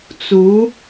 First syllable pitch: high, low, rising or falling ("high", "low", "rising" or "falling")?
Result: rising